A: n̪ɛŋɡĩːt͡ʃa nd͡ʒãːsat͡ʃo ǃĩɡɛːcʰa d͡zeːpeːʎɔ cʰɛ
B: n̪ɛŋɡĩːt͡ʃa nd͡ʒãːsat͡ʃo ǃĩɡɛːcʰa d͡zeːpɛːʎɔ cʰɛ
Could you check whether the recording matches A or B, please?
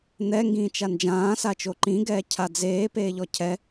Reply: A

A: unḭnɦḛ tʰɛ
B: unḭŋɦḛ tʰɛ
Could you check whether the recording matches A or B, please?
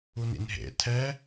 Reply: A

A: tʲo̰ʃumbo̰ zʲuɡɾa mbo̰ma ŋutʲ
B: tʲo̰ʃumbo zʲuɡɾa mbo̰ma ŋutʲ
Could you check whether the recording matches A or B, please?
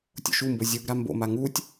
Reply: B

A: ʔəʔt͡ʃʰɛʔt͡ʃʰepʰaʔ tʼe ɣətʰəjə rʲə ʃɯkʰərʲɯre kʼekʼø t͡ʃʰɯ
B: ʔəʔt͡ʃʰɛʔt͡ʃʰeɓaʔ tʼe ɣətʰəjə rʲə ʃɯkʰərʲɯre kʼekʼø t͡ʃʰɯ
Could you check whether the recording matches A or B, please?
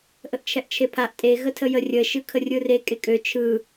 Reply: A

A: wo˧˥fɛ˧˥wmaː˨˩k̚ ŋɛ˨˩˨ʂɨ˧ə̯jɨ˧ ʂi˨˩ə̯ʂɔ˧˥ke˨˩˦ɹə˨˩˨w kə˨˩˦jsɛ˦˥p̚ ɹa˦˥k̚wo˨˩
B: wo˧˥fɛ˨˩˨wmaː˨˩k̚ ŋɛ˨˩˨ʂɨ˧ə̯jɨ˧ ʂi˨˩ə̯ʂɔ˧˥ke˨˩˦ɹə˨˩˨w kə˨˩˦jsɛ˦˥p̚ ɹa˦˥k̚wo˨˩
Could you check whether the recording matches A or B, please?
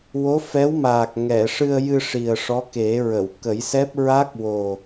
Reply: A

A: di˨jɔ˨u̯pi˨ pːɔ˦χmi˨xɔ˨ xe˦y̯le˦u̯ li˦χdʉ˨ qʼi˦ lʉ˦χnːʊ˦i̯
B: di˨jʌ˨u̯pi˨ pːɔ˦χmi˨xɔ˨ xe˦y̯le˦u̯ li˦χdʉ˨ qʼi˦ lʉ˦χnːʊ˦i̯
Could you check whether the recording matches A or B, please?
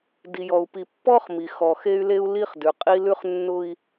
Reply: A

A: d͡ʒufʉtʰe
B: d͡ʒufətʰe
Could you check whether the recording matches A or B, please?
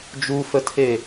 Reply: B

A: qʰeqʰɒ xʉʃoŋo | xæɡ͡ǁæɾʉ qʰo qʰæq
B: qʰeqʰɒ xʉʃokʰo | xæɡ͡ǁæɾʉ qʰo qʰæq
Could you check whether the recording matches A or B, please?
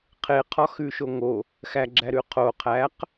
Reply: A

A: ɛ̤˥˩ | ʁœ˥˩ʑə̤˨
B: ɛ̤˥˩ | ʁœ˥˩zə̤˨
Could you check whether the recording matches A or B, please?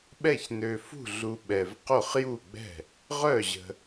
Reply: A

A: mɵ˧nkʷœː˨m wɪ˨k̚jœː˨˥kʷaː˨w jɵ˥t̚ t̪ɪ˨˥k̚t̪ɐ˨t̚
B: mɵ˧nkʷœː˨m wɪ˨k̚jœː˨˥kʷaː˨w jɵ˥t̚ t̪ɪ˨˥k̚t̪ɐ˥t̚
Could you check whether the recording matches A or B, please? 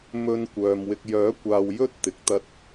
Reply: B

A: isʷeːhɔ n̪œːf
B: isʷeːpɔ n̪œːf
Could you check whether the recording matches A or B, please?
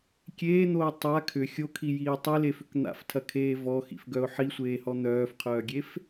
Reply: A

